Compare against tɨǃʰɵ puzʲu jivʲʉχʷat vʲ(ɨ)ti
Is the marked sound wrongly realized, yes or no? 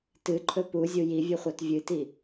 no